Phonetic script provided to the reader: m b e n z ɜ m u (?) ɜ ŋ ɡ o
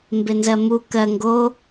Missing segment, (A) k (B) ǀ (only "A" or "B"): A